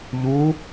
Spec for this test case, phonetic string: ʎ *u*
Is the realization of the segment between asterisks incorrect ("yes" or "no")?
no